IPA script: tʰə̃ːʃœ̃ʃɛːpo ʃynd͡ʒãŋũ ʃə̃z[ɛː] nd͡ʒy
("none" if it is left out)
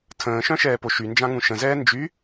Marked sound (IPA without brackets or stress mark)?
ɛː